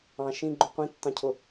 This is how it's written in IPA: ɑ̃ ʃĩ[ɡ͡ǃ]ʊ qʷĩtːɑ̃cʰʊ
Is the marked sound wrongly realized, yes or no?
no